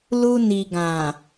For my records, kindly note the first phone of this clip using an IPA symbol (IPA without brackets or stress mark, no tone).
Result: l